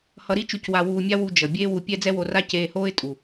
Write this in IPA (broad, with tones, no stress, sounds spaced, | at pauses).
h ʌ˧ ɾ i˥ t͡ʃ u˧ c w a˧ w uː˧ mʲ a˥ w u˧ d͡ʒ ʌ˩ bʲ eː˥ w u˧ pʲ ɛ˥ d͡z ɛ˥ w o˧ r a˥ c eː˧ h oː˥ ɪ̯ tʼ u˩